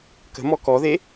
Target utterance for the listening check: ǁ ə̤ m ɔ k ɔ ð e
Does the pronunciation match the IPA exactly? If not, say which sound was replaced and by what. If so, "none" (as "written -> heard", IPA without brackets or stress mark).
ǁ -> k